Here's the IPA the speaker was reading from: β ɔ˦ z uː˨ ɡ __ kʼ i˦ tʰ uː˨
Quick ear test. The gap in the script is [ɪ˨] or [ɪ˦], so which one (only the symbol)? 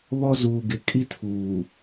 ɪ˨